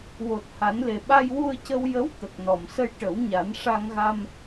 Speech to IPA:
w o˨˩ t̚ h a˨˩˦ n l e˨˩ ɓ a˧ j w u˧ ə̯ c ə˧ w j ə˧˥ w t̪ ə˨˩ k̚ n ɔ˨˩˨ m s ə˧ j ʈ ə˨˩˦ w ɲ a˨˩˦ n ʂ a˧ ŋ ɣ a˧ m

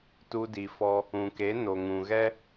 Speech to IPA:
t u˧ d i˨ f ɔ˧ | ũ˨ k e˨˦ n o˨ ŋ ũ˨ ɣ ɛ˦

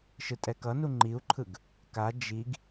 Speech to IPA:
ʃ ɯ tʼ ɛ k ʌ n u ŋ͡ǃ i u̯ ǃʰ ɯ ɡ | k a d͡ʒ i ɡ

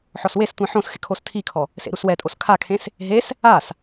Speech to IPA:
ħ ɔ s w e s tʷ ĩ ħ õ s x ɪ kʰ o s tʰ i kʰ ɔ | s ḛ ɾ u s w ɛ tʼ o s kʰ a kʰ ẽ s | ɦ e s | a s

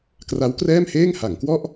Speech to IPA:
k r a˦˥ w k r ɛː˥˩ m h eː˥˩ ŋ h a˩˦ ŋ k w ɔ˥˩ ʔ

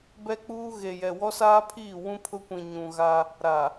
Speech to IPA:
b ɛ˦ k͡p uː˦ ɣ e˨ j ɛ˨ w ɔ˦ s aː˦ pʰ iː˦˨ w ũ˦ pʰ ʊ˦ kʷ ĩ˨ ɲ ũ˨ ɣ a˦ | ɾ a˨

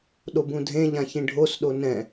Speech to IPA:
ɗ o b ũ dʱ ẽ ʎ ã ç ĩ ɖʱ o s ɗ o n ɛ̃

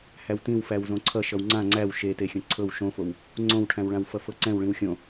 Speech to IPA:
h æ w t ĩ w f æ w z õ ǀʰ ʌ ʃ ʌ w ŋ͡ǀ ã ŋ͡ǀ æ w ʃ e t e xʲ õ ǀʰ ɤ w ʃ õ f o w | ŋ͡ǀ õ w ʈʰ æ̃ w ɭ ã w f ʌ f ɤ ǀ ɛ̃ w ɭ ĩ w xʲ õ

